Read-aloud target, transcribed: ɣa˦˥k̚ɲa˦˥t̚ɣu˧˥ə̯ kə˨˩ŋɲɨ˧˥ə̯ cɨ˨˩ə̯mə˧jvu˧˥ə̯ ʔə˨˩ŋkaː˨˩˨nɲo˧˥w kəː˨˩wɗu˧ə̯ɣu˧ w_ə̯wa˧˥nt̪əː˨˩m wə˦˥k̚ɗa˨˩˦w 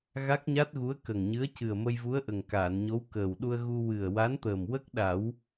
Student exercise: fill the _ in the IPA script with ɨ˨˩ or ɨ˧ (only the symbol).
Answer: ɨ˨˩